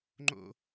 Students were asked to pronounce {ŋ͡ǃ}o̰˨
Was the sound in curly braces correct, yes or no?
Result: yes